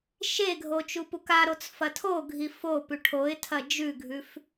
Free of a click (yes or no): yes